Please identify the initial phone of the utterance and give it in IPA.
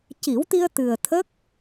c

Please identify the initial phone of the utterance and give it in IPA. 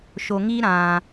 ʃ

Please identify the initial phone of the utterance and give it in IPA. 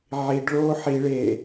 ʕ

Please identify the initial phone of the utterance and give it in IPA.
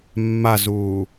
mː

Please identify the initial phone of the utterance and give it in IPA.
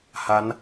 h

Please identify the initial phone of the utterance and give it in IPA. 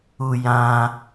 u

